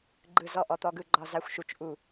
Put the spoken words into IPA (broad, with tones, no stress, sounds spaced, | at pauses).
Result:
ɡ͡ǃ ɯ˦˨ z ɔ˦˨ ʔ ɔ˨˦ t̪ ɔ˦˨ ɡ ɯ˦˨ ɡ͡ǃ ɒ˦˨ z a˦˨ xʷ ʃ u˨˦ t͡ʃ ʔ u˦˨